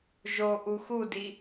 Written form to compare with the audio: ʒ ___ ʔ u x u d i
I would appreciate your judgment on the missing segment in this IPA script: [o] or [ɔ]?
o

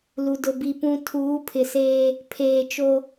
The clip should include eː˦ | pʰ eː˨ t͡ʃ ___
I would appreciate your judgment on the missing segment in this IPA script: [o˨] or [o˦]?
o˦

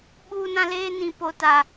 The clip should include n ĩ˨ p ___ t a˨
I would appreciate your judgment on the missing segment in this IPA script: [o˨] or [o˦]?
o˨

